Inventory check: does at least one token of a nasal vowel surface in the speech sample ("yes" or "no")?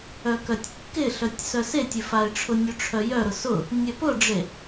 no